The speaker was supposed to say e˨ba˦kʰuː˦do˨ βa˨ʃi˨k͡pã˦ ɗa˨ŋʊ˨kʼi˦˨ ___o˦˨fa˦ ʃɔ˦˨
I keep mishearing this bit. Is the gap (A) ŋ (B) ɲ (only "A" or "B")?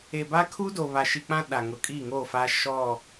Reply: A